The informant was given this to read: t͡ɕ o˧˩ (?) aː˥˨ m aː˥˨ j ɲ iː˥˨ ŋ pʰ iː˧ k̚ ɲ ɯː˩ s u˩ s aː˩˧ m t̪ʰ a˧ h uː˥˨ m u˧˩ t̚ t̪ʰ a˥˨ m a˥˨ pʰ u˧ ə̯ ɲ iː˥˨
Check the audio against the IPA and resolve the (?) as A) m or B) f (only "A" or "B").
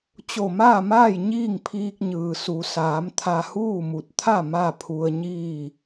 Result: A